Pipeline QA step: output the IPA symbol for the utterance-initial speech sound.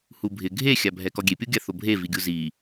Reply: h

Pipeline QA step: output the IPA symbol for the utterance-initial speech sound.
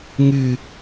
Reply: ŋ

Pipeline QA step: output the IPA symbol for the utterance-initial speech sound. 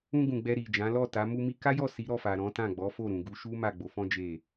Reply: ũ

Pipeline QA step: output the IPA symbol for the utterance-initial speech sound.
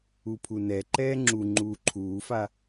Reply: u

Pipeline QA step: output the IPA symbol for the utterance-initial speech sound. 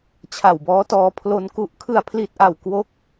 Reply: t͡ɕʰ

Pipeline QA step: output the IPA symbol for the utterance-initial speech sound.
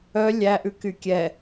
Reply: œ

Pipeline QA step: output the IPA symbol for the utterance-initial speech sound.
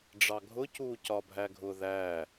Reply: ɖ͡ʐ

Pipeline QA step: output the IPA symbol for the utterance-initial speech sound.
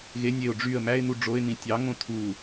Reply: ɣ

